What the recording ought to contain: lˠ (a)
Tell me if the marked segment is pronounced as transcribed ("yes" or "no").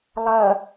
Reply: no